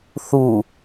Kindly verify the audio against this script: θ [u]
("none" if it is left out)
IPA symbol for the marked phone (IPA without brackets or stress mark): u